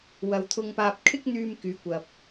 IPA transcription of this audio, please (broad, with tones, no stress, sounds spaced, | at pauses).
w ɐ˨ w t̪ʰ ʊ˧ ŋ p aː˧ p̚ kʰ ɪ˥ k̚ n̪ yː˧ m k yː˨˧ kʷ ɐ˨ p̚